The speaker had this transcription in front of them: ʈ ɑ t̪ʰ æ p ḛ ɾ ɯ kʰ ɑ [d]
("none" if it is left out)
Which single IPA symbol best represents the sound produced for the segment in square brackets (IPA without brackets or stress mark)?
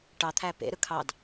d